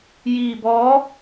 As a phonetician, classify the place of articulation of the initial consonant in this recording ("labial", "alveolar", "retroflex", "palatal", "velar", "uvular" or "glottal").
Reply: palatal